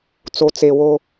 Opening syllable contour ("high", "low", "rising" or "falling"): low